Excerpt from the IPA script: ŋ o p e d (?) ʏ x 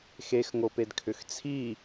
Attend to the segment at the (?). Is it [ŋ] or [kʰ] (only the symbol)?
kʰ